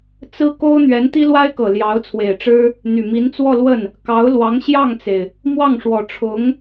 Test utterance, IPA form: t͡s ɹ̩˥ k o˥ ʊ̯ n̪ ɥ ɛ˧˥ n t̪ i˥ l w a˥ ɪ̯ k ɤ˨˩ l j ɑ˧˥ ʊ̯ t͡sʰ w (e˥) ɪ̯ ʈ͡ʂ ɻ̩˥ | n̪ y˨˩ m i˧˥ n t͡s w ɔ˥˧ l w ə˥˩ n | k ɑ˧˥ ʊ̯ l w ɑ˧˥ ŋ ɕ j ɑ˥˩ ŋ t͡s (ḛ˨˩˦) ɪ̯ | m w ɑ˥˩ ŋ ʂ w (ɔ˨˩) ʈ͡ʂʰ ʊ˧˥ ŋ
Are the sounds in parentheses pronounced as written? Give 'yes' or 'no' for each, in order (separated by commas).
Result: no, no, yes